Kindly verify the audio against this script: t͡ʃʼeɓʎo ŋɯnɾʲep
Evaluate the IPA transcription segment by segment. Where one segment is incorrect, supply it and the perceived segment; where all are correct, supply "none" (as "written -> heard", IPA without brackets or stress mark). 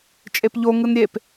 ɓ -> p